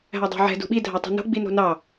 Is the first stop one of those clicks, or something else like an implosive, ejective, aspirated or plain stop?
plain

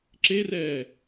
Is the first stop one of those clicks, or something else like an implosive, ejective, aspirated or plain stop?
click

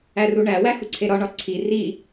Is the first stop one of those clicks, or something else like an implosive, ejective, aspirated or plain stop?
click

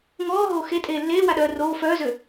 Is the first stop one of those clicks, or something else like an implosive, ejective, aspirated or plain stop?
ejective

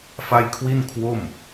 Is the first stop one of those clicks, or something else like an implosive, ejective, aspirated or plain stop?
aspirated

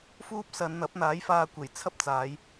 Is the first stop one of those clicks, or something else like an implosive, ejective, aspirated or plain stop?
plain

